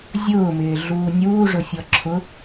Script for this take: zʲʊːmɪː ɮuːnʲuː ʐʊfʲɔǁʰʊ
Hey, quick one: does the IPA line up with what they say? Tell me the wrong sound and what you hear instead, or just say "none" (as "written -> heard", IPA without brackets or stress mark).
none